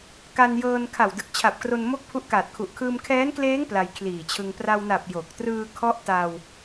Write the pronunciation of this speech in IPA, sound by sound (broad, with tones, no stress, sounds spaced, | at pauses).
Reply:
k a˧ n j ɤː˧ n kʰ a˨˩ w d ɯ˨˩ k̚ t͡ɕʰ a˨˩ p̚ k r o˧ n m o˥˩ k̚ pʰ u˦˥ ʔ k aː˨˩ t̚ kʰ u˨˩ ʔ kʰ ɯː˧ m kʰ ɛː˦˥ n k l eː˦˥ ŋ p l a˧ j kʰ l iː˨˩ t͡ɕʰ ɯ˧ ŋ p r a˧ w n a˨˩ p̚ j o˨˩ k̚ t r ɯː˧ kʰ ɔ˦˥ ʔ t a˧ w